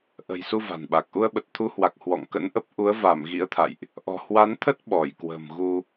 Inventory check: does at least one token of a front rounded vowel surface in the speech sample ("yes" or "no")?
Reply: no